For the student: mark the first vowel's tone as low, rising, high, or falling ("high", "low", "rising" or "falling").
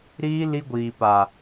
high